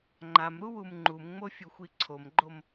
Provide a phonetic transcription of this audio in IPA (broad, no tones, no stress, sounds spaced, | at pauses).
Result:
ŋ͡ǃ a m ɾ u w u m ŋ͡ǃ u m ŋ͡m o fʲ u xʷ i ǀʰ o m ɡ͡ǃ o m